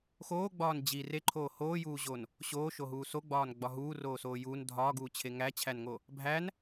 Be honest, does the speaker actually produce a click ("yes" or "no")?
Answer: yes